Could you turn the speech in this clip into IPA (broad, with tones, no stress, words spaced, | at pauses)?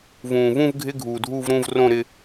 vũː˩vũ˥˧vɡʱɪ˧˥˧ ɡʱuː˩dʱuː˥˧vɾũː˥˧v rõ˥˧ ɾɪ˥˧